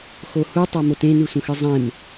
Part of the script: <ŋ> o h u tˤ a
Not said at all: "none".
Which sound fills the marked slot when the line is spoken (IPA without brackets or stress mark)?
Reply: x